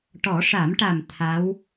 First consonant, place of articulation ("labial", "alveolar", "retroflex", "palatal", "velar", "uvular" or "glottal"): retroflex